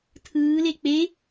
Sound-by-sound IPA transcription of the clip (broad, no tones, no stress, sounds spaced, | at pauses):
tʰ ɯː l e k͡p e